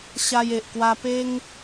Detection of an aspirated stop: absent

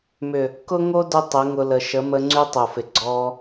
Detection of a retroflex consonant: absent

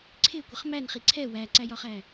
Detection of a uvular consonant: present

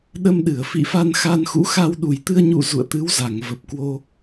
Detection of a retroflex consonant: absent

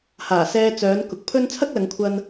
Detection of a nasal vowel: absent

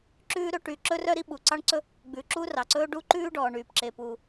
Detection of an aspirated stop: absent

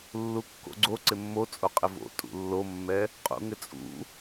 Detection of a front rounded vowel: absent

